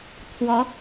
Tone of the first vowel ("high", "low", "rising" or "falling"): rising